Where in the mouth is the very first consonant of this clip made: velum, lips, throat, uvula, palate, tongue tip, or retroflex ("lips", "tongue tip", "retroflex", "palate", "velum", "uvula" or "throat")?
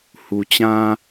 throat